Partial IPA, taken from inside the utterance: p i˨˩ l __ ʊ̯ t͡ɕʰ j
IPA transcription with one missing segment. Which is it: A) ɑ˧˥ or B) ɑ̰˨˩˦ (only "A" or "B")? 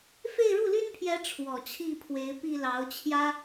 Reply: A